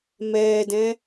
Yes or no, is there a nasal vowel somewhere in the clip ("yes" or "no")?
yes